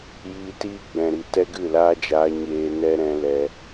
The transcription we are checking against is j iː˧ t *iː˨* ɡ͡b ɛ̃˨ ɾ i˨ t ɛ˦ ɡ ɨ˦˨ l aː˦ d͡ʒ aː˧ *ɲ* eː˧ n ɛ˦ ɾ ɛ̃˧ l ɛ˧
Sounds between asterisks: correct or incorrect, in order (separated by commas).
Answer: incorrect, correct